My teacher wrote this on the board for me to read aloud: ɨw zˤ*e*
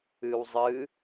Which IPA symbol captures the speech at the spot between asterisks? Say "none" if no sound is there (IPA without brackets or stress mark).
ɨ